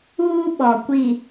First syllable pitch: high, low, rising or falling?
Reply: high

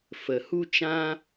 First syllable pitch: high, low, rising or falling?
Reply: low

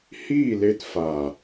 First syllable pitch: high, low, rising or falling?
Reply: falling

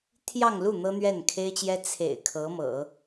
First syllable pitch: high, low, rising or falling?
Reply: falling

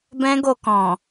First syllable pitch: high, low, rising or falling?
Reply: high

